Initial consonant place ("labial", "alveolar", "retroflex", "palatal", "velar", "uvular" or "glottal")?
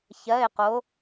palatal